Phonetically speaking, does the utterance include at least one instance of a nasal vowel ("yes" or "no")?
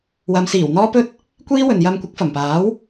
no